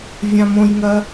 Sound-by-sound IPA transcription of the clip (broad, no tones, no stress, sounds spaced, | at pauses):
vʲ ã m õ j ŋ ɐ